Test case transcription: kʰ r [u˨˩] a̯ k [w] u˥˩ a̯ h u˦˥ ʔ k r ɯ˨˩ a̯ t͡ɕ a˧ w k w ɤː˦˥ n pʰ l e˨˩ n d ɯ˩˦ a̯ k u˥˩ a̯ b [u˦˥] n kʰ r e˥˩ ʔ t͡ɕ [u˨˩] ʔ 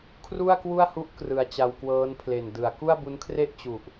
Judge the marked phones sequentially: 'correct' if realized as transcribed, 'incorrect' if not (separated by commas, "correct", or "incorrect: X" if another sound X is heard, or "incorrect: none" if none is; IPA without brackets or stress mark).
incorrect: u˥˩, correct, correct, correct